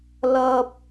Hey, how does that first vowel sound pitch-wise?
high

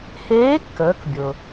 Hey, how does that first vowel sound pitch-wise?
rising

